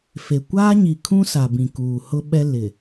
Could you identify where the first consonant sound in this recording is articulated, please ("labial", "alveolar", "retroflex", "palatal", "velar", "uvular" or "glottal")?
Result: labial